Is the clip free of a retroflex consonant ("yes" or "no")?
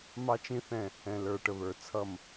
no